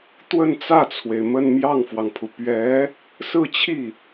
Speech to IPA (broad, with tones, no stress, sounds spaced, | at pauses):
t̪ w ə˥˧ n t͡s ä˥˩ t͡sʰ w e˩ ɪ̯ m ə˥˧ n m j ɑ˥˩ ŋ f w ɑ˩ ŋ pʰ u˩ p ɥ ɛ˧˥ | s ɹ̩˥˧ t͡ɕʰ i˥˩